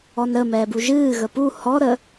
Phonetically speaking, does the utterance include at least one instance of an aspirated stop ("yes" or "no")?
no